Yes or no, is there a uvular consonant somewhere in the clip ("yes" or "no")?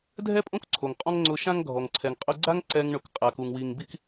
yes